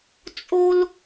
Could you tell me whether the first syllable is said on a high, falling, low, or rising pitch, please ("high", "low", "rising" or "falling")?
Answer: high